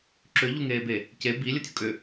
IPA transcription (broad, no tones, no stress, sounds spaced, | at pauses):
ǁ ʏ ʎ u ŋ eː b e | c e b i lʲ ə tʲ ʊ kʼ ʏ